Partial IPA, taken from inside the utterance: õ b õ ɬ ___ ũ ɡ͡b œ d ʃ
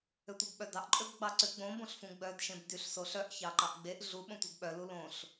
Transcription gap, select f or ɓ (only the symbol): f